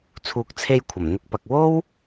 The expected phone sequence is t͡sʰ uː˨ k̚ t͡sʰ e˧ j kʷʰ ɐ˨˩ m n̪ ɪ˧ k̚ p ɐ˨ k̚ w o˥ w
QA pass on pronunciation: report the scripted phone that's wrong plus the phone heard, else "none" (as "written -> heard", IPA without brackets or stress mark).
none